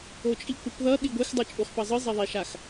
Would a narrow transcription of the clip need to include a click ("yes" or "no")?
no